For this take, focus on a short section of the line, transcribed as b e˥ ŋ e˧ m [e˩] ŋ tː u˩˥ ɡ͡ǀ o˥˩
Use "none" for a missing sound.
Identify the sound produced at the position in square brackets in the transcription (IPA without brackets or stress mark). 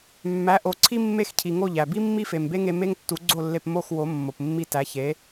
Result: e˥